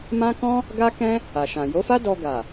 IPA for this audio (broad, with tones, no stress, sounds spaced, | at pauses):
m ã˦ k ɔ̃˦ | ɡ a˦ k ɛ̃˦ | a˨ ʃ ã˨ j o˨˦ f a˦ d ɔ˧ ɡ a˨